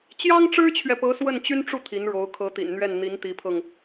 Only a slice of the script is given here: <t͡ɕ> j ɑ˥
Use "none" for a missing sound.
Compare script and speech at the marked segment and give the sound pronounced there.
t͡ɕ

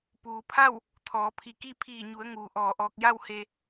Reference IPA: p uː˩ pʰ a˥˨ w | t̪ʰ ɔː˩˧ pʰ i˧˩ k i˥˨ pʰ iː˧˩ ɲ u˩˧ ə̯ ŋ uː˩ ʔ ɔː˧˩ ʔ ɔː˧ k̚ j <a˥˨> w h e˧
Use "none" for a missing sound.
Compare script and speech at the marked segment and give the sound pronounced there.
a˥˨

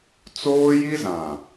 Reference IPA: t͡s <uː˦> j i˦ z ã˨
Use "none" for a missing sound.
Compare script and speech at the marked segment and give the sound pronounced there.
oː˦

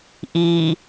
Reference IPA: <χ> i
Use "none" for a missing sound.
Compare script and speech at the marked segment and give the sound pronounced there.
ʔ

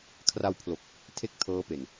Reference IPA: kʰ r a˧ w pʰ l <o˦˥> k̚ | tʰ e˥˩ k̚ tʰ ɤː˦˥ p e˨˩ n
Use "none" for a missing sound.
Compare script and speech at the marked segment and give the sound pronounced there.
o˨˩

